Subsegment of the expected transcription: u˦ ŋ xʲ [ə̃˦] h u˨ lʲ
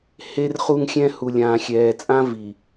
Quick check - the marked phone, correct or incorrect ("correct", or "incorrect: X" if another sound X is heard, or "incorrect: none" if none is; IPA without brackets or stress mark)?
incorrect: ɛ̃˦